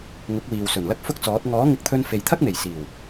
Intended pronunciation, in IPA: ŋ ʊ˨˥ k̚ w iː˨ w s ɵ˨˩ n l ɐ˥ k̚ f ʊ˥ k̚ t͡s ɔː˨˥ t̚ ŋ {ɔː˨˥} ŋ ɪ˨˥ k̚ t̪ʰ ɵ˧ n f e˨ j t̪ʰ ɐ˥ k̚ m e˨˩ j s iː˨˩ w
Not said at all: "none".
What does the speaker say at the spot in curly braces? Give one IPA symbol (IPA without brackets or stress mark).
ɔː˨˥